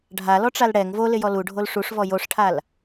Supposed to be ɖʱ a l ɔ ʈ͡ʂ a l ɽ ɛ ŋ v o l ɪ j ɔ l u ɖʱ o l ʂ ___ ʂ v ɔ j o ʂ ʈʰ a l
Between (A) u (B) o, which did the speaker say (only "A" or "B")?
A